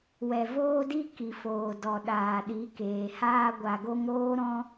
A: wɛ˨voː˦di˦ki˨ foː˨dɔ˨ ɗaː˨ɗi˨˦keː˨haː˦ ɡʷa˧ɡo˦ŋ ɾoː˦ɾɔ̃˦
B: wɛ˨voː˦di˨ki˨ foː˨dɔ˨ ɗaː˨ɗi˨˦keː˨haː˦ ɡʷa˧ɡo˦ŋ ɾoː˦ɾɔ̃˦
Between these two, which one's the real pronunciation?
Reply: A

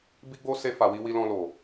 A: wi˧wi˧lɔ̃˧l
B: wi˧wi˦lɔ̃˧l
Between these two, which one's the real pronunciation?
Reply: A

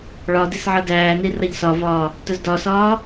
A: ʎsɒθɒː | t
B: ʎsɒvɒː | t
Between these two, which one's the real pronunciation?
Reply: B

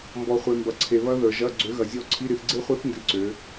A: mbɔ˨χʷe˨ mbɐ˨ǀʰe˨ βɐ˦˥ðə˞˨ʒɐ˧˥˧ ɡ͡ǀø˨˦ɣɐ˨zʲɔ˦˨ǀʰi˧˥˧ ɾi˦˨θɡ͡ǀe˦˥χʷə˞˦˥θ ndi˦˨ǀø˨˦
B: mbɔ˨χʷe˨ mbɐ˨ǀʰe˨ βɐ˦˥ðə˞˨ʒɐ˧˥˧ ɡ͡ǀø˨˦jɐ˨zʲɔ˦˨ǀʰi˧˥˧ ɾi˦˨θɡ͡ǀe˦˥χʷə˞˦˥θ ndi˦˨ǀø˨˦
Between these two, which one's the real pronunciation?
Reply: A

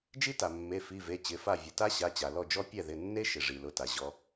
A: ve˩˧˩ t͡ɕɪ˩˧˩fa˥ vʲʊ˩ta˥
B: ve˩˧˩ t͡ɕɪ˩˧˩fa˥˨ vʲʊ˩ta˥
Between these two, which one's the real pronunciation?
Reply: B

